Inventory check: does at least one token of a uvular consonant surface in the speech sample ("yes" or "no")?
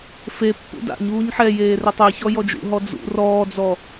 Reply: no